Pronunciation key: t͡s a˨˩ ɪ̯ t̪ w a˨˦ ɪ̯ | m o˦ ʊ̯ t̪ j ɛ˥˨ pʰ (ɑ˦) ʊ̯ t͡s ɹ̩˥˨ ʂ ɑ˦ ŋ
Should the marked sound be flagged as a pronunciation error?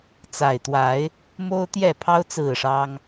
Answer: no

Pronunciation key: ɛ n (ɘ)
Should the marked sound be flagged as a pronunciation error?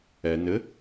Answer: no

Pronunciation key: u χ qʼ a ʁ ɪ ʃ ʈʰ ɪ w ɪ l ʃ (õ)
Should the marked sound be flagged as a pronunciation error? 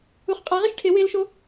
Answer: yes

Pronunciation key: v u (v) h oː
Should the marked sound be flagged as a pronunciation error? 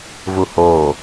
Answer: yes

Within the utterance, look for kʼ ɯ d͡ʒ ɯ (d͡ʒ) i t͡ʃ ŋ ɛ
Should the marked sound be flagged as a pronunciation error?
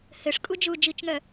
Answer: no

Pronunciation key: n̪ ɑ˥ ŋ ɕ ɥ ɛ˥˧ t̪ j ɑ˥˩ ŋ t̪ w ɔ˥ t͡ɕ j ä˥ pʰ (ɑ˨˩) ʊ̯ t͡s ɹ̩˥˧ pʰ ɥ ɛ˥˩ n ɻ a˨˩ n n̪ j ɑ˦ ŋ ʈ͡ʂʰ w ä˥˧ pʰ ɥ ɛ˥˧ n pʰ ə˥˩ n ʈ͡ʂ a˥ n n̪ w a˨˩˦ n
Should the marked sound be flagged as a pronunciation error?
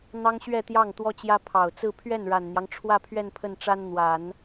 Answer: no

